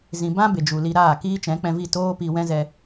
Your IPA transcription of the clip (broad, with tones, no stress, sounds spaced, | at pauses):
z ĩ˨ b ã˦ b e˨ d͡ʒ u˨ l i˧ ɾ aː˦˨ k iː˦ t͡ʃ ɛ̃˨˦ k͡p ɛ̃˧ v i˦˨ t oː˦ p i˧ w ɛ̃˦ z ɛ˧